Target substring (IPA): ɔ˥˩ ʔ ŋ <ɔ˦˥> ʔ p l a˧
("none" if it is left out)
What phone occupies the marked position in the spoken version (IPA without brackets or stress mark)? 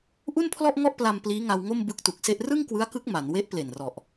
ɔ˥˩